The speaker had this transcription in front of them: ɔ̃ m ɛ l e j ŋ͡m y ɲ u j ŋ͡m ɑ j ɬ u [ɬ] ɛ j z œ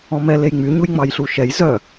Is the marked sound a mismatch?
yes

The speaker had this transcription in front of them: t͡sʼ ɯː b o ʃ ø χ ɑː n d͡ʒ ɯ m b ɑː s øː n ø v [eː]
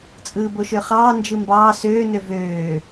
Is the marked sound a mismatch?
yes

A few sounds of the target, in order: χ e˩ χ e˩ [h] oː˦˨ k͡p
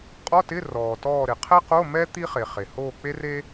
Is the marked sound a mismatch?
no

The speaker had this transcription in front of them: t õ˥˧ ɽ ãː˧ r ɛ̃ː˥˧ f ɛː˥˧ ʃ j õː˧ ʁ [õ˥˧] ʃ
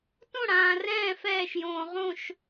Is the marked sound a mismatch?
no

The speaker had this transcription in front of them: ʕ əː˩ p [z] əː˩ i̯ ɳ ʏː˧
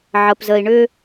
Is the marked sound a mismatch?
no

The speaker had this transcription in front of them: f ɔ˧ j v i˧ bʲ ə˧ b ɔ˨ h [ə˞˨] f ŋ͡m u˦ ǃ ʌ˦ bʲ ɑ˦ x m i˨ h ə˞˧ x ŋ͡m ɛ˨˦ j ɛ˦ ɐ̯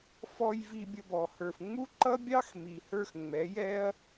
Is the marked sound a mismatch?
no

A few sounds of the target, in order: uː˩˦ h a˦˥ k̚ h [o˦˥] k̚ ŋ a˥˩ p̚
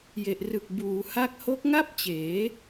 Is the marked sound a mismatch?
no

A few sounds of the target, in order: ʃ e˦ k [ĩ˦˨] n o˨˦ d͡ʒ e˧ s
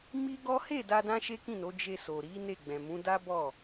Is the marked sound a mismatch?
no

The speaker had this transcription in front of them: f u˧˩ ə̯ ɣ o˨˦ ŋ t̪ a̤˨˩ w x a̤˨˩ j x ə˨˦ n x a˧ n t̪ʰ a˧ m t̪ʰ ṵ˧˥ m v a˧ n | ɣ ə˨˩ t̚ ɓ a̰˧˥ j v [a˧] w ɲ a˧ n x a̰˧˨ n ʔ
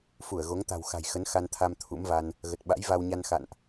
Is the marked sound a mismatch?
no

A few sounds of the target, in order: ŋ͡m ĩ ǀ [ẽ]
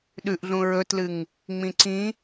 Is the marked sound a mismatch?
yes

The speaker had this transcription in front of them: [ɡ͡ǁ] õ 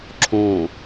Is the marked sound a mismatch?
yes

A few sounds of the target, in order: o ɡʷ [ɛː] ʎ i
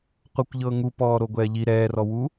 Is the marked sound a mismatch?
no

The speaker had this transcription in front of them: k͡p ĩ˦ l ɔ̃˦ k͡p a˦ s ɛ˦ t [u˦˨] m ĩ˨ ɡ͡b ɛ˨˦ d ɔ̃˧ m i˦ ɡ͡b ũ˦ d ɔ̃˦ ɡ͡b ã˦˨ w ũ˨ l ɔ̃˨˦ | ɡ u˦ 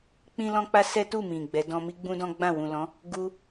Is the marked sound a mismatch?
no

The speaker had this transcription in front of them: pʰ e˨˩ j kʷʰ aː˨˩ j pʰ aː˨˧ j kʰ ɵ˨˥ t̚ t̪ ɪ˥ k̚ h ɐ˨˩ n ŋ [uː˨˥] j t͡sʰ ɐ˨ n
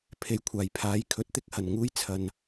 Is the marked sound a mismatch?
yes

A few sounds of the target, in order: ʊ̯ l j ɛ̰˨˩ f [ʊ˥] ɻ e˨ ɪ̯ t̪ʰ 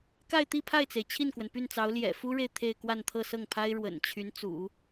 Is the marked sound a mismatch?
yes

